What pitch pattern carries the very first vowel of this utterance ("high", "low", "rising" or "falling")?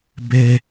high